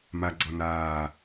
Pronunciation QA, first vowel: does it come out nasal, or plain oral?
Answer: oral